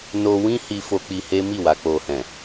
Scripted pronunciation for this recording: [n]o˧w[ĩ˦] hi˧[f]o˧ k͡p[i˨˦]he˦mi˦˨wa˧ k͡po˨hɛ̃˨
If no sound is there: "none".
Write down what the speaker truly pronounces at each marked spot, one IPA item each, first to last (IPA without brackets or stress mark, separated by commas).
n, ĩ˦, f, i˧